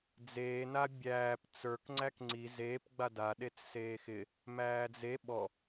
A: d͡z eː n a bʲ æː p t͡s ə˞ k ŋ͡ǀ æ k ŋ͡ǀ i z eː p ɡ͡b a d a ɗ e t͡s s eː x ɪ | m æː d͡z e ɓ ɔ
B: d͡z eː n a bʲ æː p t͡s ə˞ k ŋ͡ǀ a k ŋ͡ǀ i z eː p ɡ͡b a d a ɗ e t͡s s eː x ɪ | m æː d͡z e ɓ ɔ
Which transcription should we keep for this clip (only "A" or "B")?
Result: A